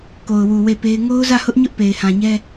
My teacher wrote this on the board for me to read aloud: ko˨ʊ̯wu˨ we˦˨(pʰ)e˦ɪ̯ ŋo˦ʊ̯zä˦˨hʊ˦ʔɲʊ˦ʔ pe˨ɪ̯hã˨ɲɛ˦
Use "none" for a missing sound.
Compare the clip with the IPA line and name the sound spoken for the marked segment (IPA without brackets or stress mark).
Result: p